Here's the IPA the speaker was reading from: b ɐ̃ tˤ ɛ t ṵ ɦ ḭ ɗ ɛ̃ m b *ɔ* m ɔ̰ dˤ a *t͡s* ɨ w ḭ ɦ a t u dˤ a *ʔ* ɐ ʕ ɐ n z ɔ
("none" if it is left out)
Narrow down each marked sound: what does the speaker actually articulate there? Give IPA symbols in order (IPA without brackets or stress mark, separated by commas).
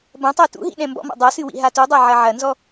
ɔ̰, s, ʕ